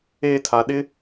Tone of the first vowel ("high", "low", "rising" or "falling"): high